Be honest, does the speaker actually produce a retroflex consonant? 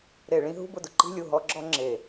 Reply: yes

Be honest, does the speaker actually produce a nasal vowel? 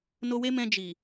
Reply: yes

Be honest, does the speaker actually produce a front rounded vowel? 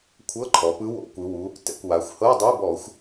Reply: no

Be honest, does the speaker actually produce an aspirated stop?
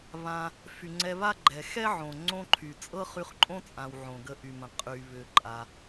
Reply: yes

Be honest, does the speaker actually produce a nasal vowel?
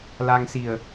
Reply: no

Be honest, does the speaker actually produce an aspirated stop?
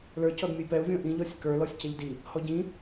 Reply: no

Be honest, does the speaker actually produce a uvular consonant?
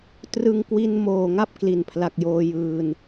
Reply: no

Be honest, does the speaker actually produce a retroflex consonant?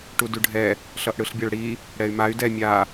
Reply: yes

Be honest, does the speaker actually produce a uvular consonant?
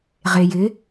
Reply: yes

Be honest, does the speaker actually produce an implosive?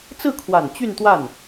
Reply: no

